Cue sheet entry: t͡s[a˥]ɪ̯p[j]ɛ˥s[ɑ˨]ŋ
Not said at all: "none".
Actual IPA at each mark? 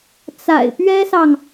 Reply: a̰˨˩, ɥ, ɑ˨

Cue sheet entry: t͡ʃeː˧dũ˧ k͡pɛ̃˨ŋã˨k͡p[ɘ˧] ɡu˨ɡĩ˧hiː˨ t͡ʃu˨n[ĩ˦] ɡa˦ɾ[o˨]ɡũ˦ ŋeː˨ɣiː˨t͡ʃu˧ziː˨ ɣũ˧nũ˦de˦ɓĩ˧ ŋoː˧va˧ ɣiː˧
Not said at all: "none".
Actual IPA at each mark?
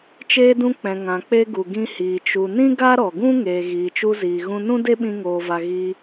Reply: e˧, ĩ˦, ɔ˨

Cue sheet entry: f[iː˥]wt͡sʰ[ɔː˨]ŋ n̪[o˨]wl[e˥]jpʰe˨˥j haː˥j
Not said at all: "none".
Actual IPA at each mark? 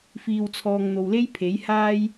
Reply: iː˨, ɔː˨, o˨, e˥

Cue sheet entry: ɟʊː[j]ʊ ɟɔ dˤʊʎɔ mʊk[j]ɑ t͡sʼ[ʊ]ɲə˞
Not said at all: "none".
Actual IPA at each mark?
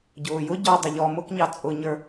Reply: j, ɲ, ʊ

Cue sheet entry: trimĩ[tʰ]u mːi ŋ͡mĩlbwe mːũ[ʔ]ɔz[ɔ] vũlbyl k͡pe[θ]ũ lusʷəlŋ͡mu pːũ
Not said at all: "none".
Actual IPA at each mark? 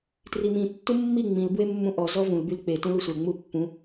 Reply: tː, ʔ, ɔ, t

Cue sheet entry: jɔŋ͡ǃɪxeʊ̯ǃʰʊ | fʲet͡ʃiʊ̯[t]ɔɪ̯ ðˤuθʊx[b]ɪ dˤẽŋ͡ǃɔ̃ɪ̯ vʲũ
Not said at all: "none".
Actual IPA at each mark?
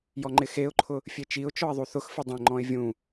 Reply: t͡ʃ, f

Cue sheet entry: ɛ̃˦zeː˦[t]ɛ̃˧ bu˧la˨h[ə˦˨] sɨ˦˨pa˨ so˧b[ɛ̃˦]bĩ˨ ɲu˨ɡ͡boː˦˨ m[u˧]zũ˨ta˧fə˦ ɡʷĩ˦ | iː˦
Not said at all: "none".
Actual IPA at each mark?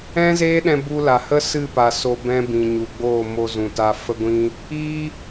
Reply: ɗ, ə˦, ɛ̃˦, o˧

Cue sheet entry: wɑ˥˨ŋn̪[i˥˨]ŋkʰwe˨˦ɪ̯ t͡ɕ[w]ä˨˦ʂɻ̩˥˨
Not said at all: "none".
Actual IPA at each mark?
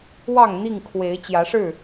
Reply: i˥˨, j

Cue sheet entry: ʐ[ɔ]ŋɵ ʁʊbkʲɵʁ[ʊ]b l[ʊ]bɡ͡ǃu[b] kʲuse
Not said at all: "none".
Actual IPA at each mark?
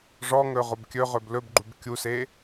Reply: ɔ, ɵ, ɵ, b

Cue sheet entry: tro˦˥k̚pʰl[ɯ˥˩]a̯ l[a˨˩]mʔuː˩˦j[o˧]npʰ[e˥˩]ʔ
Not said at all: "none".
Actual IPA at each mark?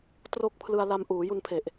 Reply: ɯ˧, a˧, u˧, e˨˩

